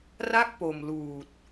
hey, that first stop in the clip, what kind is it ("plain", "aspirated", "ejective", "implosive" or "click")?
plain